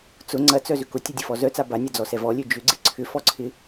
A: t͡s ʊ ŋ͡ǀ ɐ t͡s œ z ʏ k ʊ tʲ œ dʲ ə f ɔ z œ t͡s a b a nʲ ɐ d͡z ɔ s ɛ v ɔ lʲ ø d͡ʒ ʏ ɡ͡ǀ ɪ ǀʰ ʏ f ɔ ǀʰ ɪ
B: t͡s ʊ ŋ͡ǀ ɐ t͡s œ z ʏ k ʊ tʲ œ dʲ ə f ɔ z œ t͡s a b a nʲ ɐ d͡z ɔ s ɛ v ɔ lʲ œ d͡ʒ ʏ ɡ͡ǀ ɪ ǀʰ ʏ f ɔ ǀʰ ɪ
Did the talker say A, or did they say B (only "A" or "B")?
A